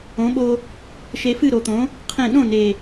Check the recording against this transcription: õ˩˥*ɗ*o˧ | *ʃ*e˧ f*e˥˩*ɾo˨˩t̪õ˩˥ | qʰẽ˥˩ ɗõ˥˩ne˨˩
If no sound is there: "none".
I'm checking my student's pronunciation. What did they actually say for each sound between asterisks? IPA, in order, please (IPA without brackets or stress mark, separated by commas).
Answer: ɓ, ʃ, ɨ˥˩